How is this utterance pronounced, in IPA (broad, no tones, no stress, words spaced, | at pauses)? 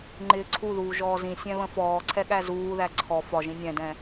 ŋ͡ǃɪːǀʰuðuː ʒɔːzĩ sʲɛ̃βə̃fɔːǀʰɛ ɠæzuːðæ ǀʰɔ fɒʒĩ nʲɛ̃dɛ̃